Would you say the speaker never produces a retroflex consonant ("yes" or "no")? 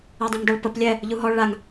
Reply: no